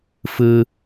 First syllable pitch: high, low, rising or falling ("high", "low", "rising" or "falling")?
low